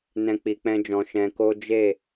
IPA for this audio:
n ɛ̃˦ k͡p i˧ k͡p ɛ̃˦ d͡ʒ ɔ̃˧ ʃ ɛ̃˧ k o˦ d͡ʒ e˦˨

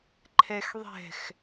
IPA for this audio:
ǃʰ ɛ x ðˤ ɛ̤ x

